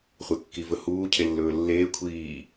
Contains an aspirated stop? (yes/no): yes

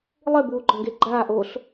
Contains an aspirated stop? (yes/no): no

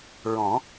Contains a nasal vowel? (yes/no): yes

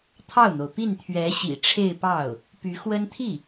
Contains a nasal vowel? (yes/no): no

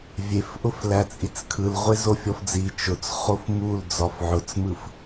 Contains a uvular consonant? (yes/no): yes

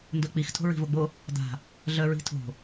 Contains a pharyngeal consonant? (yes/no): no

